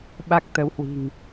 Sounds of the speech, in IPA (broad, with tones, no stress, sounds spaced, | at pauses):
ɓ a˦˥ k̚ t̪ ə˨˦ w h w i̤˨˩ ŋ